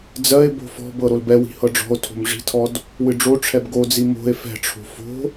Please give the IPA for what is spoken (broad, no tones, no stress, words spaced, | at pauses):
d͡zɜe̯ bo̤fɔ̤bɤ ɾolbɛwi̤ hɤɖ͡ʐɔ̤o̯tʰo̤m ʐi̤tʰɔd | wɨɖ͡ʐoʈ͡ʂʰɛb ɡod͡zi mo̤e̯ fɛ̤ʈ͡ʂʰo̤ fo̤